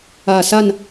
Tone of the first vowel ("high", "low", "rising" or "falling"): low